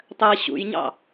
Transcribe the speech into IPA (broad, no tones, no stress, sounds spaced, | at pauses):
tˤ ɜ ɕ ṵ j ɲ ɑ̰